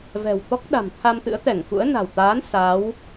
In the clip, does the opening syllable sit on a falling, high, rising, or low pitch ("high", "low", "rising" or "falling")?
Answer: low